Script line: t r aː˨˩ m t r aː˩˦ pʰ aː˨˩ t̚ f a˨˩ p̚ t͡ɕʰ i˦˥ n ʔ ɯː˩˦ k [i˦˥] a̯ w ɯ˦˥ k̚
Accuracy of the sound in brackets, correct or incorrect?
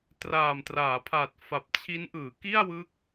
incorrect